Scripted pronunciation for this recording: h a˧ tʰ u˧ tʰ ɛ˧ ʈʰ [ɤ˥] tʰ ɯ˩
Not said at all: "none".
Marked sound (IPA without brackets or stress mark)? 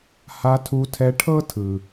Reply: ɤ˥